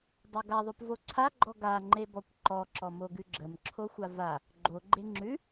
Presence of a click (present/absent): present